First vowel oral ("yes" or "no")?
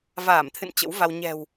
yes